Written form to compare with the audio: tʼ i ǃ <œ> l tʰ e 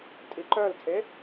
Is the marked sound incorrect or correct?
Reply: correct